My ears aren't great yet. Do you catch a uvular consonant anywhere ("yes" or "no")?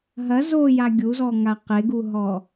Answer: yes